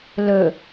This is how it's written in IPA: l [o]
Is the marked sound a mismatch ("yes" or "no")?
yes